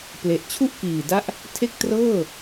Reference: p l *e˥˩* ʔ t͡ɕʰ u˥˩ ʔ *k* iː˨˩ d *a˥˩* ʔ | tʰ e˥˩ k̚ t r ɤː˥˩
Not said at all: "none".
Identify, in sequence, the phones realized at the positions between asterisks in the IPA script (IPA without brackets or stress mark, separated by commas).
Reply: e˨˩, k, a˥˩